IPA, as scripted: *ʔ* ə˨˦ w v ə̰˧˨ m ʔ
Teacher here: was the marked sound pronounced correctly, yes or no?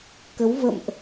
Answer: no